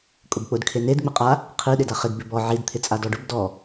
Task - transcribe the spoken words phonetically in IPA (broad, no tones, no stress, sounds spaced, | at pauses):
kʼ ʊ b k͡p ʊ d kʰ e n e d ŋ͡m i qʼ a | qʰ i ɗ ɪ d a χ ɪ d b ɪ b ɔ ʕ i d t̪ʰ ɪ t͡sʼ a d ɔ ɖ ʊ b d ɔ